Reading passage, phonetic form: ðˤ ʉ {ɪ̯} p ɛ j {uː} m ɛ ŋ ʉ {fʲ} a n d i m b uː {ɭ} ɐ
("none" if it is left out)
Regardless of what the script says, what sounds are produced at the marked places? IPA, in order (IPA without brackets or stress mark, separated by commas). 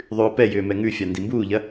ʊ̯, ʏː, fʲ, ʎ